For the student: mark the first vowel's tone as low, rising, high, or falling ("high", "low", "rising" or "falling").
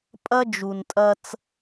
high